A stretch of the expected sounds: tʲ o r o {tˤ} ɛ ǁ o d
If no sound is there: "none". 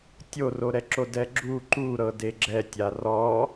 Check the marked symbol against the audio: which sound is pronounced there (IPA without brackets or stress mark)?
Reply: ɾ